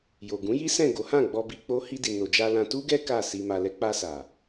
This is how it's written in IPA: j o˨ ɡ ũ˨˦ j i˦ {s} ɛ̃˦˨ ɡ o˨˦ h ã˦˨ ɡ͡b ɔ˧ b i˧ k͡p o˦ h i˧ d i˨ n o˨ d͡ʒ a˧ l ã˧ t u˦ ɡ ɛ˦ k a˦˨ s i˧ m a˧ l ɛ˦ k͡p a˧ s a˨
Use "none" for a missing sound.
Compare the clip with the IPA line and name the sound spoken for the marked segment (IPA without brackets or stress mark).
s